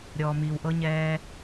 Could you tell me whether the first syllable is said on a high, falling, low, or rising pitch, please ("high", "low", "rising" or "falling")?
low